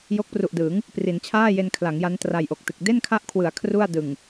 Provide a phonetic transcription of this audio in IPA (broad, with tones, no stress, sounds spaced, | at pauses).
j o˦˥ k̚ p r u˨˩ ʔ d ɯː˩˦ ŋ | p r i˩˦ n t͡ɕʰ aː˥˩ j e˧ n kʰ l a˩˦ ŋ j a˦˥ n t r a˨˩ j ʔ o˨˩ k̚ t ɯ˨˩ k̚ d e˥˩ n kʰ a˦˥ ʔ kʰ w ɯ˩˦ a̯ kʰ r u˥˩ a̯ d ɯ˨˩ ŋ